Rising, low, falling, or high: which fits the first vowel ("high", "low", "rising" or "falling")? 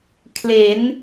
rising